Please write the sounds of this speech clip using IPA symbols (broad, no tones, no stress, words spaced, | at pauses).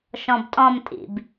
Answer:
ʃɔ̃btʼɔ̃mtʼḭb